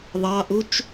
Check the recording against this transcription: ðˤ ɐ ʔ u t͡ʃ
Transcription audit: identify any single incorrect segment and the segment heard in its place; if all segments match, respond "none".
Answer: ɐ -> ɑ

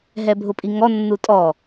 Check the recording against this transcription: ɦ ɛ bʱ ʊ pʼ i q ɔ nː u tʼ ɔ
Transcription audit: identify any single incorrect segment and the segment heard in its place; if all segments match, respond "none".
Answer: q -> ŋ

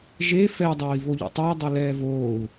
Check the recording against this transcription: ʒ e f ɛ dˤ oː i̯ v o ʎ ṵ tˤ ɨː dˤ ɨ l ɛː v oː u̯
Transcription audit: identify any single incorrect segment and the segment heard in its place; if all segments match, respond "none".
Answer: none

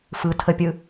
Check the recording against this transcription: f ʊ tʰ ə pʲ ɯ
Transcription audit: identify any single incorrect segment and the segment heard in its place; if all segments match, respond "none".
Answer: ʊ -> ɯ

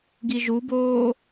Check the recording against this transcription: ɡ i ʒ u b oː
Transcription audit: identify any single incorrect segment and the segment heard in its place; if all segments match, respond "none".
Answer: none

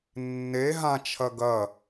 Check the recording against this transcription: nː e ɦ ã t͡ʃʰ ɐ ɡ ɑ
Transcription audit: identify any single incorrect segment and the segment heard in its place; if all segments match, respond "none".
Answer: ɑ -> ɐ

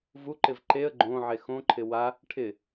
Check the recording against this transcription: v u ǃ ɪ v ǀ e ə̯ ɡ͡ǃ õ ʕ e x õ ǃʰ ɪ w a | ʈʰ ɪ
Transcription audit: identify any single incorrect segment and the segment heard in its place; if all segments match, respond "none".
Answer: ǀ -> ǃ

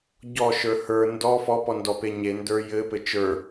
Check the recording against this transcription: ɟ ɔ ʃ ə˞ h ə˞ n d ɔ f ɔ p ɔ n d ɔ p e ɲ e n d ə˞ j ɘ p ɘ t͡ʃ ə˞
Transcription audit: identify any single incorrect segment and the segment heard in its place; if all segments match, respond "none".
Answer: none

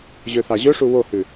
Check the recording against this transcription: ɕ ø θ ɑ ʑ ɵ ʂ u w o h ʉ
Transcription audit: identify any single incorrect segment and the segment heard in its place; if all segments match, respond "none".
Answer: ɕ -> ʑ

